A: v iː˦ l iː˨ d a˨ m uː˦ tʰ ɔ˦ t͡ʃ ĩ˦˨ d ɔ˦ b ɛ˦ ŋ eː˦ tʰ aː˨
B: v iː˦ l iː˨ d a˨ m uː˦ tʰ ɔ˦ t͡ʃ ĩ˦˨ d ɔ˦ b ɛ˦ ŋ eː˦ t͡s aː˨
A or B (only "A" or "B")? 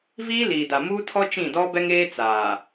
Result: B